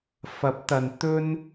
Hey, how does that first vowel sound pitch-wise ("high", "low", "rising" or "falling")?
rising